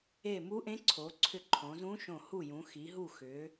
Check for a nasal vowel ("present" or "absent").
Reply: present